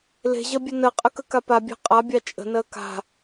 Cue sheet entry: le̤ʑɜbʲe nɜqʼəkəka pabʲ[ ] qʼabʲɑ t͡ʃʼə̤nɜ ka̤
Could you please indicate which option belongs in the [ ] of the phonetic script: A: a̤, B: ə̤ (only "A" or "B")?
A